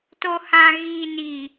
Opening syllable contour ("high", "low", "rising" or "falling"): high